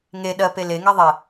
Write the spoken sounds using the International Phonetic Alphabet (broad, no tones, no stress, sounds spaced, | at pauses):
ŋ e ɗ ɜ p e l e ŋ ɛ ðˤ e